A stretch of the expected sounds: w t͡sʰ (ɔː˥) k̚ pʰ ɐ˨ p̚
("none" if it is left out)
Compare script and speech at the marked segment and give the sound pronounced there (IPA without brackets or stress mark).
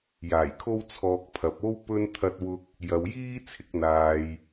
ɔː˧